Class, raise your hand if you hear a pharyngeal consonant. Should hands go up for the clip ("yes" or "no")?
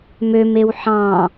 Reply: yes